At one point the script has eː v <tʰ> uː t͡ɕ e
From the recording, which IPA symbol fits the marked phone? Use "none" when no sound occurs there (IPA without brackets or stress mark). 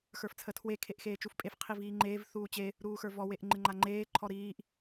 θ